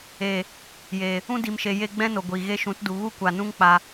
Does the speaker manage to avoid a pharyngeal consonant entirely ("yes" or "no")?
yes